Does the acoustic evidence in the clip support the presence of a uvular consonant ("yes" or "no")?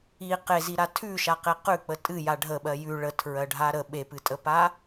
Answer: yes